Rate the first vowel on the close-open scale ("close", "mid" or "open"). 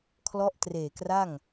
mid